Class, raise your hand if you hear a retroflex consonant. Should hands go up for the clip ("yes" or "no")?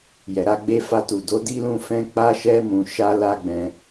no